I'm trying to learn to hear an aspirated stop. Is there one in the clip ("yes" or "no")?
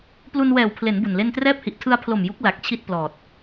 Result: yes